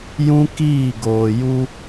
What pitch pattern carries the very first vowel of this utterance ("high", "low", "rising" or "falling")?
high